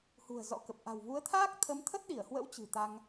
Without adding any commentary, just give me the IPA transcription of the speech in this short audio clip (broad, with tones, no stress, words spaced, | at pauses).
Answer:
hṳ˨˩ə̯ zɔ̰˧˥kə˨˩p̚ ʔa̤˨˩wvu˨˦ə̯t̪ʰaː˦˥k̚ t̪ʰə˨˦mt̪ʰə˦˥t̚ɗi˧˩ə̯hwə̰˧˥w t͡ɕɨ̤˨˩t̪a˧ŋ